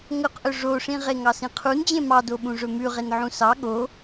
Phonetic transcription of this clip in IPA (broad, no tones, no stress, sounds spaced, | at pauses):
ŋ ɵ q ʔ ɵ ʐ o ʂ ĩ ʁ e ŋ ɑ s ĩ qʰ u n d͡ʑ ẽ m ɑ d o ɓ ũ ʐ ɵ m ʉ ʁ e n ʕ ũ s ɑ ɠ o